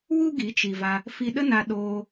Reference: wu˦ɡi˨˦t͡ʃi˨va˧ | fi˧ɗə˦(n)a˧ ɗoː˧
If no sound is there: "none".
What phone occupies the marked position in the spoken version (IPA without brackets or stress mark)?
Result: n